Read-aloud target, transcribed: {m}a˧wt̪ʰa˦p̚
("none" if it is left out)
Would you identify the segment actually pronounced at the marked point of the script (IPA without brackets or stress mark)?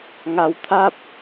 ŋ